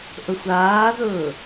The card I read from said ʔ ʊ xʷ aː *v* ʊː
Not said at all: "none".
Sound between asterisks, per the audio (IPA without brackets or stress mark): ð